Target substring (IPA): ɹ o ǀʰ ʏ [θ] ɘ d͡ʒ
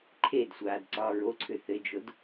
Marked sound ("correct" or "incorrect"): correct